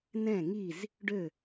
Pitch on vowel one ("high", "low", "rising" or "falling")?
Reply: falling